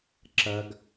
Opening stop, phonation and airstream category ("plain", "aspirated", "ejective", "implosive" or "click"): click